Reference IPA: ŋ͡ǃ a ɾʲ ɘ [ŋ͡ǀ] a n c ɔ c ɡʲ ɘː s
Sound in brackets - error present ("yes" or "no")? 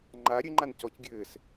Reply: yes